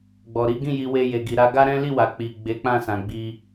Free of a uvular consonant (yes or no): yes